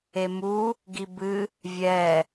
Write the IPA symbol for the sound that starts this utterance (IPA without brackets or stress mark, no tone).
e